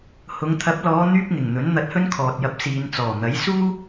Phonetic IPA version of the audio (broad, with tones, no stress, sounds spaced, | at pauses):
h ʊ˨˧ ŋ t̪ʰ ɐ˨˥ p̚ l ɔː˨˧ n̪ yː˥ p̚ ŋ ɪ˨˩ ŋ n̪ ɵ˨˥ n n̪ ɐ˧ t̚ h ɵ˥ n kʰ ɔː˨ t̚ j ɐ˨˥ p̚ s iː˨ n t͡s ɔː˨˩ n̪ ɐ˨˥ j s uː˥